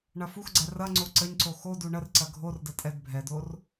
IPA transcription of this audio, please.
ɳ ɐ f u x ɡ͡ǀ ɛ r ɐ ŋ͡ǀ o ǀ ə ɲ ǀ o x o d u ɳ ə r ǀ ɐ ɡʱ o r d ə tʼ ɛ d bʱ ɛ d o r

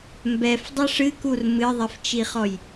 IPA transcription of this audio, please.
m b ɛ f dˤ ɛ ʂ ɨ k u r m ɨ ðˤ ɛ f t͡ʃ i χ ɔ j

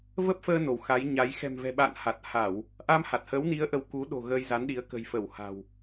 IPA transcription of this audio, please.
v ə˦˥ p̚ f əː˧ n o˧˩ w x a˨˦ j ɲ a˨˦ j x ɛ̤˨˩ m v ɛ̤˨˩ ɓ a̰ː˧˨ n h a˨˩ t̚ h a˧˩˨ w | ʔ a˧ m h a˨˩ t̚ h əː˨˦ w n i˨˦ ə̯ ʔ ə˧ w k u˨˦ ɗ o̤˨˩ ɣ əː˧ j z a˨˦ n ɗ i˨˦ ə̯ k ə̤˨˩ j f ə˧˩ w h a̤˨˩ w

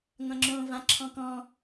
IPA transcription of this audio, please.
ŋʷ ã ŋ͡ǁ õː v ã ǁʰ ɔ̃ k ɔ̃

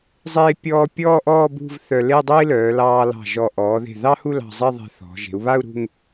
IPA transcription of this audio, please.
zˤ eː˥ pʲ ɔː˥ pʲ ɔː˥˧ ʔ ɔː˥˧ b ṳ˥˧ v θ œ˧ l e˥˧ dˤ o˥ i̯ l œː˩˧ l ɑː˧ l ɑ̤˧˩ ʒ ɔ˧˩ ʔ ɔː˩˧ ð e̤˧˩ ð ɑ˥ h u˥˧ l ɑ̤˧ zˤ e˥˧ ðˤ e̤˧ θ ɔ̤˩˧ ʒ e̤˩˧ u̯ β a˥˧ u̯ ɾ ṳ˥˧ ŋ

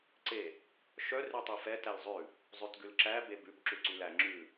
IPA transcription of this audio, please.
ǀ e | ʃ œ r ʉ tˤ e f ɛ t æ l zˤ ʉ | zˤ ʉ t ɡ ʉ l ǁ æ b e b ʉ b ǁ ʉ ǀ y l æ ŋ͡ǁ ʉ

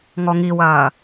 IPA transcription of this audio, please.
ŋ ɔ ŋ i w ɐː

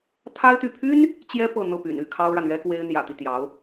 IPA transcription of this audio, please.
t̪ʰ a˥ ɪ̯ t̪ y˥˩ pʰ y˥ n | t͡ɕ j ɛ˥ p ɤ˥˧ n̪ ɤ˥˩ p y̰˨˩ n y˥˩ kʰ ɑ˥ ʊ̯ ɻ a˨ n ɥ ɛ˥ k w e˥ ɪ̯ n̪ j ä̰˨˩ t̪ i˦ t̪ j ɑ˧˥ ʊ̯

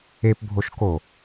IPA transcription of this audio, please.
e p bʱ o ʃ k o

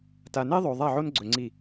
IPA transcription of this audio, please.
t a˨ n e˦ ðˤ o˨ ðˤ a˦˨ ʕ o˦ n ɡ͡ǀ ɵ˨ ŋ͡ǀ i˦˨

